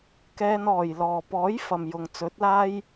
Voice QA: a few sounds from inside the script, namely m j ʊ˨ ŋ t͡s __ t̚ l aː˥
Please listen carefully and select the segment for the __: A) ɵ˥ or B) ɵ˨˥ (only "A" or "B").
B